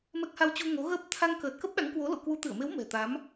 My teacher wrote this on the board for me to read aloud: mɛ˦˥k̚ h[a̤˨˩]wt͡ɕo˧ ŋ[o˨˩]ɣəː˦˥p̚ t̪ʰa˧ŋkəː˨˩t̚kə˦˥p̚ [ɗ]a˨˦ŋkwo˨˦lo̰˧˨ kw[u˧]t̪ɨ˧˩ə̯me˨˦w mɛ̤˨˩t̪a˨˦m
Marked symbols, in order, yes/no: no, no, yes, no

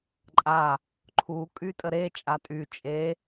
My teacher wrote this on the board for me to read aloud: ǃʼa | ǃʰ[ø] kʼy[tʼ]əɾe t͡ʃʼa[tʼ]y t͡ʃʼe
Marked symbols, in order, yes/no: no, yes, yes

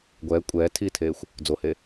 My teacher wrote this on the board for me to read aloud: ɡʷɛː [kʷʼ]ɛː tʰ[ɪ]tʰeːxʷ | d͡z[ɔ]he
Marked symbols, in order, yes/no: yes, no, no

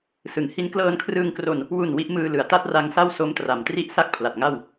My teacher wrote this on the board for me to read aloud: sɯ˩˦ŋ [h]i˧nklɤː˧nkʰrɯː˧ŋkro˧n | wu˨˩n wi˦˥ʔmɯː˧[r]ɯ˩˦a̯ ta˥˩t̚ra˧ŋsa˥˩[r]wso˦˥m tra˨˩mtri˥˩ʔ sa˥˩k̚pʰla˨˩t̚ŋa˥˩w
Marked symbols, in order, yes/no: yes, no, no

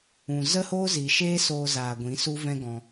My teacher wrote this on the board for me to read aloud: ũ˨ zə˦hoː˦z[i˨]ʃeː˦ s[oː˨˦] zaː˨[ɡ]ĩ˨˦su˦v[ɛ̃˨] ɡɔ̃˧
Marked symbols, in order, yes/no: yes, no, no, no

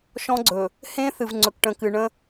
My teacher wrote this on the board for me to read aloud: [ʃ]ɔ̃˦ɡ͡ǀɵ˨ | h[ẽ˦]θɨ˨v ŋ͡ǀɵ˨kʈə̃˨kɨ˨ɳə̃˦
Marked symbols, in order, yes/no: yes, yes

